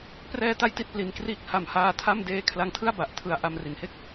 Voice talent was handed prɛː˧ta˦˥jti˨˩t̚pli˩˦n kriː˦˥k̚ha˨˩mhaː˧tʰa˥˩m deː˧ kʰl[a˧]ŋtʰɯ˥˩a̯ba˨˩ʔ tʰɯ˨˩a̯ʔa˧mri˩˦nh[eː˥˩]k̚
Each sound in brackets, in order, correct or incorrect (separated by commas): incorrect, incorrect